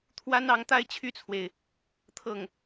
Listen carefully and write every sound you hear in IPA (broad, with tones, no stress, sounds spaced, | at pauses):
t̪ʰ w a˥ n ɑ˧˥ ŋ t̪ a˥ ɪ̯ t͡ɕʰ y˥˩ t͡sʰ w e˩ ɪ̯ | t̪ʰ ɤ˥˩ ŋ